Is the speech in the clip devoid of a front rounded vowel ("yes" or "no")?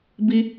yes